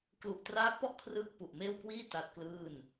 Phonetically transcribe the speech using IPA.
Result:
klu˨˩ʔtraː˦˥k̚pɔ˥˩ʔ kʰrɯː˥˩k̚ pu˨˩ʔmeː˥˩wkwiː˥˩ ta˦˥t̚klɯː˥˩n

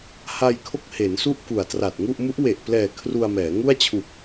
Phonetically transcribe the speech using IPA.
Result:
ha˧j kʰo˥˩k̚he˩˦nsu˥˩ʔ ku˨˩a̯tra˨˩t̚ŋu˥˩ʔ mu˦˥ʔwe˨˩ʔplɛː˨˩ kʰru˧a̯mɛː˩˦ ŋu˥˩a̯t͡ɕʰu˨˩k̚

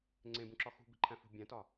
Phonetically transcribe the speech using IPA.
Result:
ŋ͡ǀẽbũǁɒ xṳ bi̤ǃʰæ̃fṳ bʲæ̃tɒ

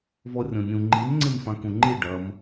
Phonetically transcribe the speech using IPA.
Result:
vɔrʲɔ̃nʲũ ŋ͡ǃimŋ͡ǀemfã kũŋ͡ǃi ɖɐm

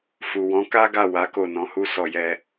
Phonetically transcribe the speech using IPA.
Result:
fu˨wɔ̃˨˦ka˦ɡa˦˨ wa˨˦ ko˦˨nɔ̃˨˦hu˦ sɔ˦˨jɛ˧

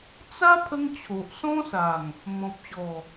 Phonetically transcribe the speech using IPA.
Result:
t͡sa˦ pʰə˦ŋt͡ɕʰo˨ʔ sɔ̃˦sa˨˩ŋ | mɔ̃˨p̚ɕɔ˨˩

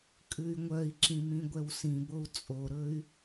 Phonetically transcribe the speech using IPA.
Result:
kʼʉy̯ŋʷœi̯ǁĩ mĩɡʷɛwsĩbou̯ t͡sʼoɾɵy̯

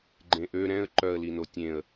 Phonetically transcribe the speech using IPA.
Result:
ɡ͡ǃẽʔø ɾɛ̃ə̯ ǃœə̯li notʲẽə̯

